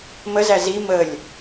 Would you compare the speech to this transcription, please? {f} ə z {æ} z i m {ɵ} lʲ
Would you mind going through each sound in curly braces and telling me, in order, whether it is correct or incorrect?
incorrect: m, correct, incorrect: ə

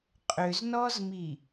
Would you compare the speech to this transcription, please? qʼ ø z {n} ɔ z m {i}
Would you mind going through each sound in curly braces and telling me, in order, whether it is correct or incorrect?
correct, correct

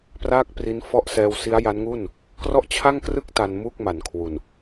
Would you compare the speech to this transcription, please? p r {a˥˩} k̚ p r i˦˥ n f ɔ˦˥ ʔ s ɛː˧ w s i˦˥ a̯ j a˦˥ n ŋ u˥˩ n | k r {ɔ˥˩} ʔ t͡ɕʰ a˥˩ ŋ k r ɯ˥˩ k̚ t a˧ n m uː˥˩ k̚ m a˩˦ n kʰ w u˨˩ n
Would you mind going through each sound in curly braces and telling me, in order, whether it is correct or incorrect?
incorrect: aː˥˩, correct

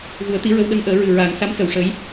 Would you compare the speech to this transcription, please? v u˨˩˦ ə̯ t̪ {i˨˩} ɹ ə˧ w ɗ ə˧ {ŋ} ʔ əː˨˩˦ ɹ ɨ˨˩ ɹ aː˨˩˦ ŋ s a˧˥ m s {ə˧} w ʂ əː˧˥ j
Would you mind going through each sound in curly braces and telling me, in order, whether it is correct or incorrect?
incorrect: i˧˥, correct, incorrect: ə˨˩˦

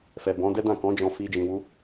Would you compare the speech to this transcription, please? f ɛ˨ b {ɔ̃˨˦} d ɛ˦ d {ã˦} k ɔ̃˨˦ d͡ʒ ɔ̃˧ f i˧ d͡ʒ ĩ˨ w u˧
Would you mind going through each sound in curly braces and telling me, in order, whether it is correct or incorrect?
correct, incorrect: ã˦˨

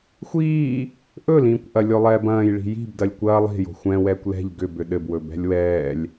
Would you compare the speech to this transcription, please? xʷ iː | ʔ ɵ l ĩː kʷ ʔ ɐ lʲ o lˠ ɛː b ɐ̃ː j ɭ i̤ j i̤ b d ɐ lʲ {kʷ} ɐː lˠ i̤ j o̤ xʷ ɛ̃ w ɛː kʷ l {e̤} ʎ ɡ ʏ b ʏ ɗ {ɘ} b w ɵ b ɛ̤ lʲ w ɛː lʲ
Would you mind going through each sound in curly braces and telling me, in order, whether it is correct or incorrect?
correct, incorrect: ɛ̤, correct

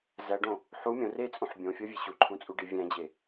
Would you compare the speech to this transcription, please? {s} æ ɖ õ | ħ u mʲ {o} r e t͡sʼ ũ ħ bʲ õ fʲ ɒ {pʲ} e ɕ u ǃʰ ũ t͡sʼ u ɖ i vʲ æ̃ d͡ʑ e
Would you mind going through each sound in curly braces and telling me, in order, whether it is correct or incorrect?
incorrect: z, incorrect: õ, incorrect: vʲ

